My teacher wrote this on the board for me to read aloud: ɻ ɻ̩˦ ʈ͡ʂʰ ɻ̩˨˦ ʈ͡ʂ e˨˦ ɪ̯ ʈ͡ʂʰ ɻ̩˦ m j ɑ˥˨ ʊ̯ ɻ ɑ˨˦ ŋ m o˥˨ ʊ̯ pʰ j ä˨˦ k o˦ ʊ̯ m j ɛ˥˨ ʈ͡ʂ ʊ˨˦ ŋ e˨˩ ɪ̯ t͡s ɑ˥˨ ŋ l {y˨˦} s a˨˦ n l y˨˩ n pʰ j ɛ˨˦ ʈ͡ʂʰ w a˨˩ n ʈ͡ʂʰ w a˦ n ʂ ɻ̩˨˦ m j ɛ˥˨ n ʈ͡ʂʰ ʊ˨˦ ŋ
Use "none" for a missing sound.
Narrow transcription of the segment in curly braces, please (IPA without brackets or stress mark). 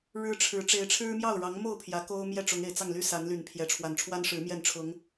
y˦